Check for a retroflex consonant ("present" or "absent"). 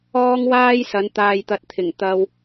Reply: absent